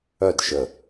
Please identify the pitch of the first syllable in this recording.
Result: falling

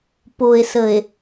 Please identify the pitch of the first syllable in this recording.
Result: low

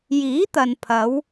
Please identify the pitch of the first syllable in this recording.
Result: rising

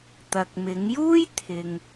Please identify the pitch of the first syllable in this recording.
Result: low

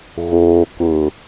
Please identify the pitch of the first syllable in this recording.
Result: low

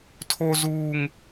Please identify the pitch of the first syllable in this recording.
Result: high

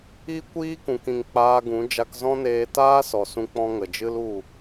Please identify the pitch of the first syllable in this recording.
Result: high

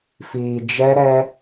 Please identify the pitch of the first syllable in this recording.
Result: low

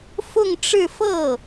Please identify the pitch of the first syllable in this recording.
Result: falling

